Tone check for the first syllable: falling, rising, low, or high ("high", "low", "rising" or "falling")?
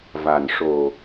low